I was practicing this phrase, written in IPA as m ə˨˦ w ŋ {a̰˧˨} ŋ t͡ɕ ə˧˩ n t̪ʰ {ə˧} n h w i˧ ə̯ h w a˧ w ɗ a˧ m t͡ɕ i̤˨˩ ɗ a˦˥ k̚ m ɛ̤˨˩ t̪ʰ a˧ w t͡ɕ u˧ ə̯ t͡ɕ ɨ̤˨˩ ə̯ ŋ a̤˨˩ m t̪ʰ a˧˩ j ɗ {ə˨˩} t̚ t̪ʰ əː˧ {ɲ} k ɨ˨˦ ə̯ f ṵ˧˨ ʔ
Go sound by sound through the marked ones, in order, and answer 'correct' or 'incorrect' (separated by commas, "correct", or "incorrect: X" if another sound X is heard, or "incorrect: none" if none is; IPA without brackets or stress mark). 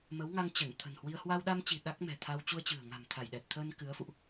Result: incorrect: a˧, incorrect: ə̤˨˩, incorrect: ɛ˨˩, incorrect: n